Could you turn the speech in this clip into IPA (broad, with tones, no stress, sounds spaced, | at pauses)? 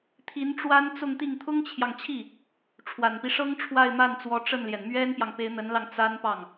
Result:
t̪ʰ i˧˥ n ʈ͡ʂ w a˥ n t͡s ʊ˥˧ ŋ t̪ i˥˩ ŋ t̪ʰ ʊ˥ ŋ t͡ɕʰ j ɑ˨ ŋ t͡ɕʰ i˥˩ | ʈ͡ʂʰ w a˨˩ n p i˦ ʂ ɤ˥ ŋ ʈ͡ʂʰ w a˥˧ ɪ̯ m a˥˩ n t͡s w ɔ˧˥ ʈ͡ʂ ə˥˩ n l j ɛ˩ n m ɥ ɛ˥ n p j ɑ˨ ŋ p e˧˥ ɪ̯ n̪ ə˧˥ n l ɑ˧ ŋ t͡s a˥ n p ɑ˥˩ ŋ